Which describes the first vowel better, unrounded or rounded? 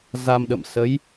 unrounded